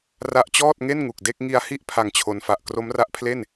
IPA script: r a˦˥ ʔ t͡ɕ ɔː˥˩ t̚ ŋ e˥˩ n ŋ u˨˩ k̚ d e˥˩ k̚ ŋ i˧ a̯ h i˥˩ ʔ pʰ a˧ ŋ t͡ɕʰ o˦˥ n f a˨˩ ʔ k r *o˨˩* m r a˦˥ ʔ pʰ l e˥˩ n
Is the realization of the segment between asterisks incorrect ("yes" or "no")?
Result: yes